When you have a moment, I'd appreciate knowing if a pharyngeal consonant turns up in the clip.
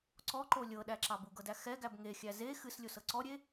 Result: no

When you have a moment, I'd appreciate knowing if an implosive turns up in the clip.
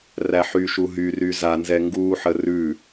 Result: no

